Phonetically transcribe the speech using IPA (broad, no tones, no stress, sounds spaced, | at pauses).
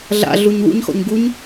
ɮ a̰ ɮ u ɲ w ṵ ɲ x ɔ̰ ɲ ɡ u ɲ